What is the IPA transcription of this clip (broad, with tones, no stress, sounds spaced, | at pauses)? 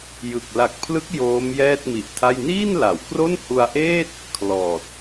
j ɯ˨˩ k̚ l a˨˩ k̚ pʰ l ɯ˦˥ k̚ j oː˦˥ m j ɛː˥˩ t̚ m i˨˩ ʔ tʰ a˥˩ j n iː˥˩ n l a˩˦ w k r o˥˩ n h u˧ a̯ ʔ eː˥˩ t̚ | kʰ l ɔː˨˩ t̚